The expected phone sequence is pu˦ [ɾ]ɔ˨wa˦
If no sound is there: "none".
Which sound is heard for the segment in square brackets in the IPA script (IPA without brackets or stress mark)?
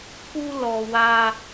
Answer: l